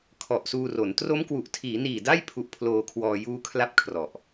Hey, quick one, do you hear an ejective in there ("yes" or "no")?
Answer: no